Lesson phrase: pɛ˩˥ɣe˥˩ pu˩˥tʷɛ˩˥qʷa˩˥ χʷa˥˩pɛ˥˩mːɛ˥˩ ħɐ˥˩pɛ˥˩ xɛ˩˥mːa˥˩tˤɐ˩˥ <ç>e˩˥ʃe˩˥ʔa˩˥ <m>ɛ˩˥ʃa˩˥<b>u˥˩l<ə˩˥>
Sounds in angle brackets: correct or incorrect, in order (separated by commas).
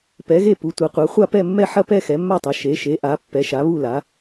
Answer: incorrect, incorrect, incorrect, incorrect